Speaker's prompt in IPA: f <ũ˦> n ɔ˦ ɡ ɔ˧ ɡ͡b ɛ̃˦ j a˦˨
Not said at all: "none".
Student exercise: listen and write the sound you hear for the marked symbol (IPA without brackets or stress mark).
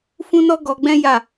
ũ˦